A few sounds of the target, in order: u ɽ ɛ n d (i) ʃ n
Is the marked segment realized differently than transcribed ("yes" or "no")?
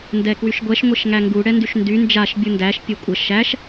yes